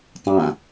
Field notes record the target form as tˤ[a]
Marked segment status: incorrect: ã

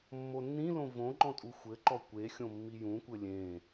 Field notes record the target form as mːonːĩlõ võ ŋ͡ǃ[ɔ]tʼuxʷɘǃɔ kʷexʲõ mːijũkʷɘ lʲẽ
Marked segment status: incorrect: ɔ̃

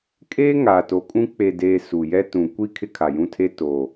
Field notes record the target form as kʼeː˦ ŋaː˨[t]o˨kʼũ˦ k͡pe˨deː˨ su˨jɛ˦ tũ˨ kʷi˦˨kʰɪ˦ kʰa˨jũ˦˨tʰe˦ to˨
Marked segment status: correct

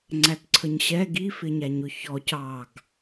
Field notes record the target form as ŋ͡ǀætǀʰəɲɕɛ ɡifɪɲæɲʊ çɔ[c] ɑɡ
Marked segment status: correct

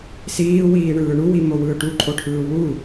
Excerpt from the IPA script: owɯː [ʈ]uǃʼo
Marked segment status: correct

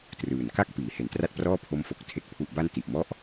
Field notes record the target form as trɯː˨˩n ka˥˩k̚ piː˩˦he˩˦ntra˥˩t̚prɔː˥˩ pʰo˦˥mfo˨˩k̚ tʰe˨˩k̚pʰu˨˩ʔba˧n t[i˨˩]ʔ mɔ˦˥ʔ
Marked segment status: correct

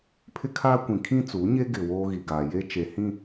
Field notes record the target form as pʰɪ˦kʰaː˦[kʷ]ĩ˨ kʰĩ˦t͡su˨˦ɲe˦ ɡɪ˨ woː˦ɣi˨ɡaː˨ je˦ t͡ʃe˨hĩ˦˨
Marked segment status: correct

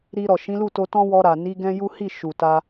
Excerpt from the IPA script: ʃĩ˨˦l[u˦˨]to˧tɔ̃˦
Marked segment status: correct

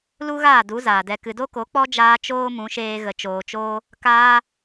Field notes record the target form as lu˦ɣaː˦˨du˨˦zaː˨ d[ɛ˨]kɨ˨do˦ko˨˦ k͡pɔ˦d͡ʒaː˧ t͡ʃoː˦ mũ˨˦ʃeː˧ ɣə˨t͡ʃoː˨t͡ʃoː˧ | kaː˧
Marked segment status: correct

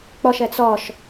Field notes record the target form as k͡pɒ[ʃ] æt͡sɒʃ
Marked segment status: correct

